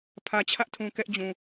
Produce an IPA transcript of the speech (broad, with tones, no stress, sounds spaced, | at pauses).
pʰ ä˨ t͡ɕʰ ä˦ ʔ tʰ ũ˨ k ɛ˦ ʔ d͡ʑ ũ˨